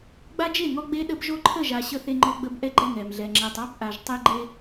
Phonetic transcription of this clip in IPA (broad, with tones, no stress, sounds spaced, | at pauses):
ɡ͡b a˦ d͡ʒ e˦˨ ŋ ɔ˦ ɡ͡b e˦ ɗ ə˦ b ʒ o˦ ǃʰ ə˦˨ ʒ a˨ ɕ ə˦ θ e˦ ŋ͡ǃ ɔ˦ ɡ͡b ə˦ b ʔ ɛ˦ ɡ͡ǃ ɛ˦˨ ŋ ɛ˨ m ɮ ɛ˨ ŋ͡ǁ ɛ˨ tˤ ɑ˦ b ʔ a˨ ʒ tˤ e˦ ɡ͡ǃ e˦